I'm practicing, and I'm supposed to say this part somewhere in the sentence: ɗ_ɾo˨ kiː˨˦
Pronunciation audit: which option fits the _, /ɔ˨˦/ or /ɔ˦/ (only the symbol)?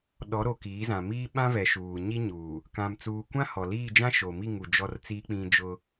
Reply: ɔ˨˦